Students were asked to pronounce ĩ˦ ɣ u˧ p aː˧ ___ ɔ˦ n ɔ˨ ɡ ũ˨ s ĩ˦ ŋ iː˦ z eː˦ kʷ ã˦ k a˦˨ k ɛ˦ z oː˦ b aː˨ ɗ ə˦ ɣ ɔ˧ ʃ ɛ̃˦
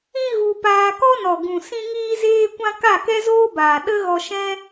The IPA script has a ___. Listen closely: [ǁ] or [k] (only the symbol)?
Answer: k